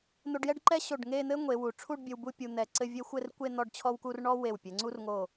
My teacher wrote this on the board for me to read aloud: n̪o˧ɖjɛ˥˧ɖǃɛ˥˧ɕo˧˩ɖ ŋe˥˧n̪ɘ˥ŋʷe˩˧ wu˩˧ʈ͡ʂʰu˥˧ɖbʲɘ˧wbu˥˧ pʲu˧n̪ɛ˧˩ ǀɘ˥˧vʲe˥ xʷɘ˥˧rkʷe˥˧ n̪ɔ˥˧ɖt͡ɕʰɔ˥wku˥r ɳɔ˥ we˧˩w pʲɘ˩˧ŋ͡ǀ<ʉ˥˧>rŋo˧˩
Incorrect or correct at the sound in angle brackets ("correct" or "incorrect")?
incorrect